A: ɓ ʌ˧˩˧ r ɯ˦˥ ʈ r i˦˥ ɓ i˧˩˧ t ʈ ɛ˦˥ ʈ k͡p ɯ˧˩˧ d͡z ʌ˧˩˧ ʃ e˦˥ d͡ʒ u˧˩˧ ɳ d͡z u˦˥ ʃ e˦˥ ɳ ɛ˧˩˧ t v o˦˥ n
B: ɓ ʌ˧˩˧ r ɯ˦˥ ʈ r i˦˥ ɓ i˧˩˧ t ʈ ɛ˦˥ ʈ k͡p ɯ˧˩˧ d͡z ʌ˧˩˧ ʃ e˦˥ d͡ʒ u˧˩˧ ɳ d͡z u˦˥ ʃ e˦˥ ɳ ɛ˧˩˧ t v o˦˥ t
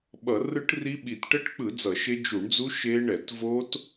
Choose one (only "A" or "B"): B